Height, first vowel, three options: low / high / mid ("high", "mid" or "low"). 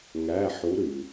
low